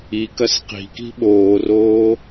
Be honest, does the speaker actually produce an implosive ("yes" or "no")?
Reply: yes